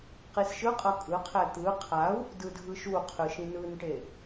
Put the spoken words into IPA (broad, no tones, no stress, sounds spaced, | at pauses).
q i s ʃ ɯ qʼ ʌ kʼ ɯ qʰ ɛ t̪ ɯ qʰ a u̯ | d ɯ dʱ ɯ ʃ u qʰ ɯ ʃ ĩ n ɯ n ʈ e